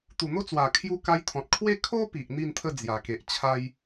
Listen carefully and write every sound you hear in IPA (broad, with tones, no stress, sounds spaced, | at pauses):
t̪ u˨˩ n̪ o˦ t͡s w a˨˩ kʰ j u˧ k a˧ j t̪ʰ ɔ̃˨ t̚ kʰ w e˥˧ kʰ o˦ p i˨ ʔ n̪ i˥˧ n t̪ʰ ə˥˧ d͡z j a˨˩ k e˨ ʔ t͡ɕʰ a˦ j